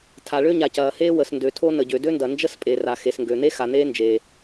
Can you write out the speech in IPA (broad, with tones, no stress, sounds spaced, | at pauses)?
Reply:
tʰ a˩ ɭ ø˥ ɲ a˩ c ɐː˩ h eː˥ w ə˩ s n d ø˩ tʰ o˥ n ə˩ ɟ ø˩ d ø˥ n d ɐ˩ n d͡ʒ ə˥ s pʼ e˩ r a˩ x e˩ s ŋ ɡ ø˩ n̪ e˥ x a˩ n̪ eː˥ n d͡ʒ e˩